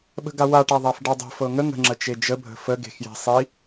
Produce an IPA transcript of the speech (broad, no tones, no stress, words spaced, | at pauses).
ɓə̤ɡawa ʈaðˤafɖadˤə̤ fɤŋə ŋə̤ ŋ͡ǁət͡ʃed͡ʒə bʱə̤fə ɡe̤xje̤ sˤi